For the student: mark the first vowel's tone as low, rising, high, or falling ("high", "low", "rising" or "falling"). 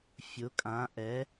rising